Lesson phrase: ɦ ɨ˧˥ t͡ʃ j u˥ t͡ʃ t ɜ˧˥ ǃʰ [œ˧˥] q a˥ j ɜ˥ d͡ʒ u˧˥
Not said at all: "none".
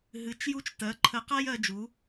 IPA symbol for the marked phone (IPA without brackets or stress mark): ə˧˥